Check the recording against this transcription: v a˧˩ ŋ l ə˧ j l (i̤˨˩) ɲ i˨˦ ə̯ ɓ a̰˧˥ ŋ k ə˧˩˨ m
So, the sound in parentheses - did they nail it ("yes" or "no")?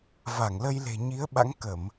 no